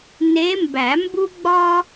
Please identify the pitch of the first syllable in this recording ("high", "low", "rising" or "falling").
rising